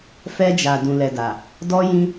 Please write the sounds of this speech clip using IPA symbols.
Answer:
f ɛ˧ d͡ʒ a˨ d ũ˨ l ɛ˨ d a˨ | d ɔ˧ j ĩ˧

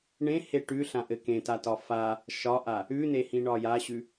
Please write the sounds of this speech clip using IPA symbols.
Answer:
ɳ ẽ h e ʈ ʉ ɬ ã ʔ ɘ k ẽ t a t ɒ f a | ʃ ɒ ʔ a | ʉ n e h ĩ ɳ ɒ j a ɕ ʉ

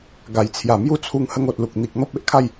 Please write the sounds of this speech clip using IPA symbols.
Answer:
ɡ a˨˩ j t͡sʰ j a˨˩ m j u˦ t͡sʰ u˧ ŋ h ə˦ ŋ o˨ t̚ l u˨ k̚ n̪ i˨ k̚ n̪ ɔ˦ p̚ e˦ ʔ kʰ a˥˧ j

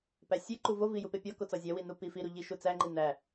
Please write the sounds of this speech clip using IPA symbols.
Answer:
p æ sʲ e ǃ u v o v i j u p e pʲ ɒ k o t͡s ɒ zʲ æ w i n u p i f i ɾ u ʎ i ʃ u t͡s æ ŋ͡ǃ i n æ

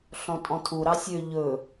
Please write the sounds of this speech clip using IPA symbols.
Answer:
ɬ ɔ̃ tʼ ɔ̃ tʰ u ɾ ɑ sʲ ø ʎ ɵ

